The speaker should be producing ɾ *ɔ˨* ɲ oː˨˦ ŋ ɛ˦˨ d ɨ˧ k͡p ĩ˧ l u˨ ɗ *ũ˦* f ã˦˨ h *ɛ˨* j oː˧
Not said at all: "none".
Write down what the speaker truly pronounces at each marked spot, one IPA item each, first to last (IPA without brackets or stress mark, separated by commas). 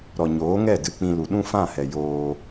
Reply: ɔ˨, ũ˦, ɛ˨